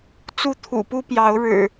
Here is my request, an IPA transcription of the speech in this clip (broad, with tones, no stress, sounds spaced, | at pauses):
t͡s u˥˨ t̪ʰ ṵ˨˩ p u˦ p j ɑ˨˦ ʊ̯ ɻ ɻ̩˨˩